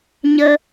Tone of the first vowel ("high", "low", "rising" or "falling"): high